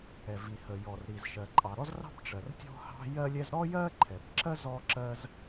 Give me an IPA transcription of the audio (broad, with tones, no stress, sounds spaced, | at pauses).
ɛ˩ v i˩ h ə˩ j ɔ˩ r ɾ i˩ z ʃ ɜ˩ ǃʼ ɑ˩ ɾ ɔ˥ z r ɑ̤˥ b ʈ͡ʂ ɜ˩ r tʲ ɔ̤˥ h ɑ̤˥ j ɜ˥ lʲ ɛ˥ z ɾ ɔ˥ j ɜ˥ ǃʰ ɛ˩ b ǁ ɜ˥ z ɔ˥ ǁ ɜ˥ z